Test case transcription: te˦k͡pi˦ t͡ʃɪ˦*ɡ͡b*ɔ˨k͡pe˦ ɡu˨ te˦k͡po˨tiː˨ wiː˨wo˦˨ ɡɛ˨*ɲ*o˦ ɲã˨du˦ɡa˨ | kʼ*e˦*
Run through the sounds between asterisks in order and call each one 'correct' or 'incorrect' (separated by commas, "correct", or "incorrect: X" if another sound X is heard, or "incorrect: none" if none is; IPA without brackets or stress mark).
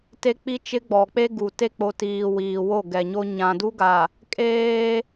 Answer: correct, correct, incorrect: eː˦